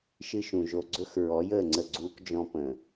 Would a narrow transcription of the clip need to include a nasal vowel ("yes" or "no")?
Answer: yes